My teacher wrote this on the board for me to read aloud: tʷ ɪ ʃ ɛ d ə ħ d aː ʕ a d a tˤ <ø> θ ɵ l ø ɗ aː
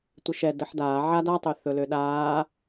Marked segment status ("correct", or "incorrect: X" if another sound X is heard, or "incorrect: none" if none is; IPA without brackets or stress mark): correct